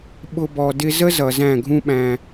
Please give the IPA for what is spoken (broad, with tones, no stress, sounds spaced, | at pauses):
ɓ ʊ˧ b ɔ˨ d ɪ˧ z ə˦ z ʌ˨ z æ̃˦˨ ɡʱ ũ˦ ɓ æ̃˧